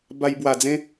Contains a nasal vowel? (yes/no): yes